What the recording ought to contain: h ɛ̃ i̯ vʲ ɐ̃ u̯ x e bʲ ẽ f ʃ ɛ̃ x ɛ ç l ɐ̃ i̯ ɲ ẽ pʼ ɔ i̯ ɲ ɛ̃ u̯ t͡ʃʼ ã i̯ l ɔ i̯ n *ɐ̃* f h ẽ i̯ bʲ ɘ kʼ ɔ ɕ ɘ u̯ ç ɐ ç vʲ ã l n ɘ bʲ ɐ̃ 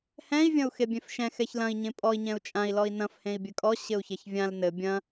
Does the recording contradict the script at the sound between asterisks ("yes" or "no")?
no